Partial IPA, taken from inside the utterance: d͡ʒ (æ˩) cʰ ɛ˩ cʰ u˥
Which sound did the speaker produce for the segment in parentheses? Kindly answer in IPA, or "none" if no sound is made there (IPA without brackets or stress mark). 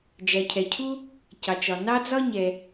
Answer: æ˩